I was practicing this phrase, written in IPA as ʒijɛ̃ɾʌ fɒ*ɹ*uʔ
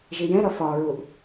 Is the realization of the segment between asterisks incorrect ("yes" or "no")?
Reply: no